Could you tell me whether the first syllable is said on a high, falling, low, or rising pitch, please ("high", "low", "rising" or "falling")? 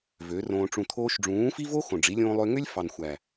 rising